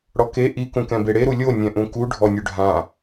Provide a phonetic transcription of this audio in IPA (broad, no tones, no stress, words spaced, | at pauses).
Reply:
ɽɔke ʔi kũkɛ̃beɽe ɾulʲo nʲɛ̃ʔũku ɖʱɔnʲuɖʱã